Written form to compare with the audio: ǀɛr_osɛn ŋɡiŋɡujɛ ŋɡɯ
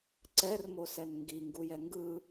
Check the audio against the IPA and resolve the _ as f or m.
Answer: m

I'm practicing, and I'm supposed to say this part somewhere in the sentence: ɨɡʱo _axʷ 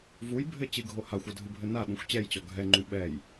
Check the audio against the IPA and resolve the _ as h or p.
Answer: h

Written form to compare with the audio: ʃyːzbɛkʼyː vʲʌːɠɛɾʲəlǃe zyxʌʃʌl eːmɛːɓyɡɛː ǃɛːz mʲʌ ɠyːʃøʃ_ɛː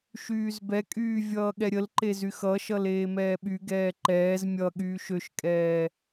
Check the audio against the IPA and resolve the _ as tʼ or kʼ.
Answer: kʼ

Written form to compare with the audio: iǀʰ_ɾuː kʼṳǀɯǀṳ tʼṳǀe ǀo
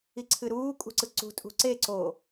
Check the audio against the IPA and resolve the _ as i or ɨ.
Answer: ɨ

